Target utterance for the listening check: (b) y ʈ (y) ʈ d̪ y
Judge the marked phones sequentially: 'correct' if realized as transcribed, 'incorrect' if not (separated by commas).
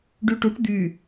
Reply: incorrect, incorrect